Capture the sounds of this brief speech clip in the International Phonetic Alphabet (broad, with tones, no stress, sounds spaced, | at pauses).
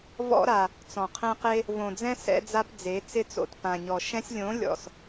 v ɔ̰˦ ɾ a˨ | t͡s ɔ̃˨ qʰ ẽ˦ q e˦ | v õ˨ d͡z ɛ̃˦ s ɛ̰˧ d͡z a˧ p d͡z e˨˦ t͡s ɪ˦˨ t͡s o̰˨ t p ã˨ ɲ ɔ˨ ʃ ɛ̃˧ sʲ lʲ õ˨˦ lʲ ɔ̰˨ s